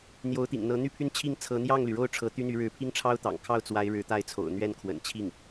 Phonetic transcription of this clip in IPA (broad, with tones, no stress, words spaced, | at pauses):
n̪jo˧˥ʊ̯t̪ḭ˨˩ŋn̪ɤ˧˥ n̪y˥˩pʰy˥nt͡ɕʰi˥˩ŋ t͡sʰɤ˧˥n̪jɑ˥˩ŋly˩ɻo˥˩ʊ̯ ʈ͡ʂʰɤ˧˥t̪y˥n̪y˧˥ ɻɻ̩˧˥pʰi˥ŋʈ͡ʂʰɑ˥ʊ̯t̪ɑ̰˨˩ŋ kʰɑ˥˩ʊ̯t͡swa˧˥ɪ̯ ɻɻ̩˧˥t̪a˥˩ɪ̯t͡sʰo̰˨˩ʊ̯ n̪ɥɛ˥˩nkʰwə̰˨˩nt͡ɕʰi˥˩ŋ